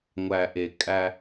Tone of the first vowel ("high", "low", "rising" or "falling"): low